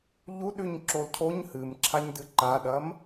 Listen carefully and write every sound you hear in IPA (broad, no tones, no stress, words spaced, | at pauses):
ʎuɗʉɲǁol cʰoɲ hɨmǁʰaɲdɨ ǃaɗɐm